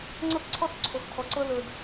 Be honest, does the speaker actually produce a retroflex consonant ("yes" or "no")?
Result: no